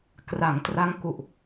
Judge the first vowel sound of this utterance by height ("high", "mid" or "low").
low